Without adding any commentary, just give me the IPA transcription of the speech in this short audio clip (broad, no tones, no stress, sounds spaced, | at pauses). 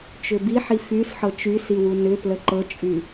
t͡ʃ ʏ b i ħ i f y s ħ ɤ t͡ʃ y s i w u n ʏ p l ə ǃ ɤ t͡ʃʼ y